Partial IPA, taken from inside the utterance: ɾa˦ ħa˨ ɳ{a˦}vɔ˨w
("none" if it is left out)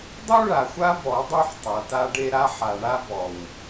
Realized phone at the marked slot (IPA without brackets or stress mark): a˦